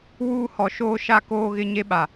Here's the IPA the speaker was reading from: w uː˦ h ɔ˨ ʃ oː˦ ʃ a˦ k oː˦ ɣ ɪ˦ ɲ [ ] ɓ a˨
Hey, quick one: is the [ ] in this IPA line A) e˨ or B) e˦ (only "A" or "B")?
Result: B